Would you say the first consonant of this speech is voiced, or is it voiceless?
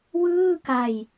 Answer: voiced